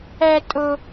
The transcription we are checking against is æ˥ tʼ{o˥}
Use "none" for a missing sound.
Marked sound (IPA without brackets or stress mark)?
o˥